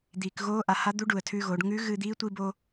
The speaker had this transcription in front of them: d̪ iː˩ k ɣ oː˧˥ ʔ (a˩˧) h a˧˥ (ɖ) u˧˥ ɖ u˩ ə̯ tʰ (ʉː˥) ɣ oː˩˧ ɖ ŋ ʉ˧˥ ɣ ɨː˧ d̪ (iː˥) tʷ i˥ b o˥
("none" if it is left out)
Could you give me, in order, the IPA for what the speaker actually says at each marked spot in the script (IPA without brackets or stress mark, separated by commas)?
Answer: a˩, d̪, ʉː˧, iː˧˥